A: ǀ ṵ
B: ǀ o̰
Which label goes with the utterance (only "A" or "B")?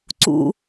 A